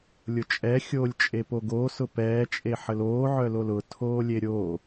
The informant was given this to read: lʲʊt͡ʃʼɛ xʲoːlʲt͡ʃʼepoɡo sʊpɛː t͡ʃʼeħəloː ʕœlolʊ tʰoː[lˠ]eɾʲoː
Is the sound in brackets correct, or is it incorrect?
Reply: incorrect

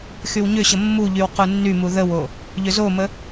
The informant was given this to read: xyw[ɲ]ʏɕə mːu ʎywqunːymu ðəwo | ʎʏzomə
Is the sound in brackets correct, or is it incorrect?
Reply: correct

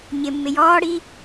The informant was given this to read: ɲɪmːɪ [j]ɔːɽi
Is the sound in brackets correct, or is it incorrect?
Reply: correct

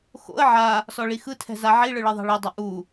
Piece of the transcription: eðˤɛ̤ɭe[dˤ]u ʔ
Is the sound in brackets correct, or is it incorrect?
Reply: correct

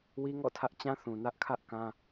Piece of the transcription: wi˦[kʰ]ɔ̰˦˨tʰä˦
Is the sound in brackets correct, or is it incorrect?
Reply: incorrect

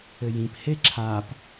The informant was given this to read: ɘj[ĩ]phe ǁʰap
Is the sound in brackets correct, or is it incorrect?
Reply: correct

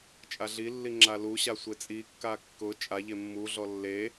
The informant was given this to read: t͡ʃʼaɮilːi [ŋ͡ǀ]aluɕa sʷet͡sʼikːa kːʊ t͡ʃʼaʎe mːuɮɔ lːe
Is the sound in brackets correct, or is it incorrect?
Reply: incorrect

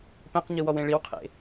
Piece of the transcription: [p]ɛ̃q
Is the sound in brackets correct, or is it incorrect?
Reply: correct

